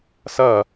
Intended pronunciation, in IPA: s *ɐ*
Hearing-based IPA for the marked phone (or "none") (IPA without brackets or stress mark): ɐ